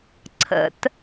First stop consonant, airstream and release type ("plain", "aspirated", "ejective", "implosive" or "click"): click